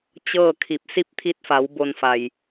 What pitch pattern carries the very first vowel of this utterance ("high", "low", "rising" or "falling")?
falling